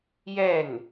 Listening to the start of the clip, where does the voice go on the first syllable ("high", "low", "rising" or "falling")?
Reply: falling